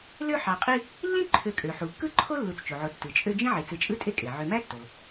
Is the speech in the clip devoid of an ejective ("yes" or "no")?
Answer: no